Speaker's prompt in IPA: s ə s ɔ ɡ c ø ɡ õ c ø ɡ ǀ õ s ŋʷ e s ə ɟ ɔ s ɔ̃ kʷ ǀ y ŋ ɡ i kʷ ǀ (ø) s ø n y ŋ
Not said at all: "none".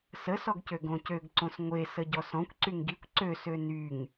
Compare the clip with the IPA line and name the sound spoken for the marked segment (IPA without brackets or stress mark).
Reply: ø